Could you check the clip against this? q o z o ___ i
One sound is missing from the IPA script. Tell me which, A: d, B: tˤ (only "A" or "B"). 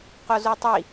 B